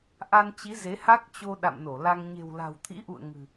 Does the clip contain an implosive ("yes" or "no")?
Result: yes